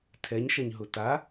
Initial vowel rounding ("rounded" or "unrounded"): unrounded